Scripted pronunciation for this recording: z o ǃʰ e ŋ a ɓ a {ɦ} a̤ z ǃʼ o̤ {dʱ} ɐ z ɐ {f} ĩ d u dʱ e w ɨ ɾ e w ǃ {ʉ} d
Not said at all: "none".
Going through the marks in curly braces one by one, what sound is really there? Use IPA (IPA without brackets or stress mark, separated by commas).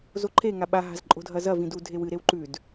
ɦ, dʱ, v, ʉ